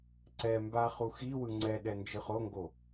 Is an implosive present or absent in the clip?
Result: present